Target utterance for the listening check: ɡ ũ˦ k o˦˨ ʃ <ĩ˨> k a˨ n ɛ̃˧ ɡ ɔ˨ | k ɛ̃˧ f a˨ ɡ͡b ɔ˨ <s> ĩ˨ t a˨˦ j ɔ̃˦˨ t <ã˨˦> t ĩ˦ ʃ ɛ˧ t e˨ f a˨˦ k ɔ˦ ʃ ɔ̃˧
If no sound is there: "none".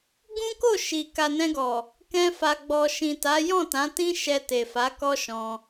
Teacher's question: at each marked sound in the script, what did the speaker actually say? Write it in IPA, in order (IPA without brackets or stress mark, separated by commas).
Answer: i˨, ʃ, ã˨˦